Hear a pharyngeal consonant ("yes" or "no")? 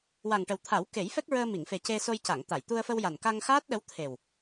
no